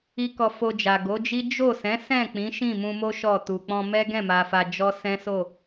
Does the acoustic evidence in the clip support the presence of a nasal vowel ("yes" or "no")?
yes